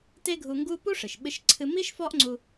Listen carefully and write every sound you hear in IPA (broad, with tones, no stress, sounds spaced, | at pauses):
t e˥ ɡʱ u˧ ŋ ɡ u˥ p u˥ ʂ ɨ˩ ʃ ɓ ɨ˧ ʃ ǀʰ ɨ˧ m i˥ ʃ f ɔ˥ ʔ ŋ͡ǀ u˧